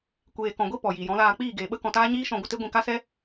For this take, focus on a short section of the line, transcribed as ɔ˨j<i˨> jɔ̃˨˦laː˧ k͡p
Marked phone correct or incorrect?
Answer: correct